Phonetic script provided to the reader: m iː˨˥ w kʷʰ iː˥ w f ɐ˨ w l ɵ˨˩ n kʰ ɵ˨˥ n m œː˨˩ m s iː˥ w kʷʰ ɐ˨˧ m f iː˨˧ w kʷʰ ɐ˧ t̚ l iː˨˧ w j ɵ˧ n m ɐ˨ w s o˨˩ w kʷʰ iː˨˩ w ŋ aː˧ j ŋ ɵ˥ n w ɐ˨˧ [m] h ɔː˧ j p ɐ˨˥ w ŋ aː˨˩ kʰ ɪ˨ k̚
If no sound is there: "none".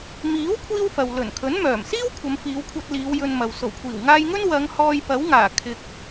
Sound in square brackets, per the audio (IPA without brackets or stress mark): ŋ